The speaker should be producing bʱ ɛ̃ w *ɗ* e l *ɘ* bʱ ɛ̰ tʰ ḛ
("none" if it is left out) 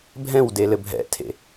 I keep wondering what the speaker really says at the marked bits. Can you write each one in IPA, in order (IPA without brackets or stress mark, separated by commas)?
d, ɘ